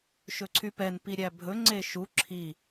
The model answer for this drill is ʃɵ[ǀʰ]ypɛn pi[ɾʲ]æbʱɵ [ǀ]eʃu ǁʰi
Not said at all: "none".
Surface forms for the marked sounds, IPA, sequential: ǀʰ, ɾʲ, ŋ͡ǀ

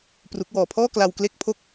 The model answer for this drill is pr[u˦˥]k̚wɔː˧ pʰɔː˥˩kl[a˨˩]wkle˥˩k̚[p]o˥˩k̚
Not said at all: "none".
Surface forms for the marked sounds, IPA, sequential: u˦˥, a˧, pʰ

